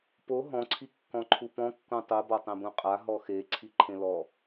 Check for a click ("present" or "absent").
present